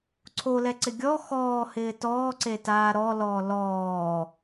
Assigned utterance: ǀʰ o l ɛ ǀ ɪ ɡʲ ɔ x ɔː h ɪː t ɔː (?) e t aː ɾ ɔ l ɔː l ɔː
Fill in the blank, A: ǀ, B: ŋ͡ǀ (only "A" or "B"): A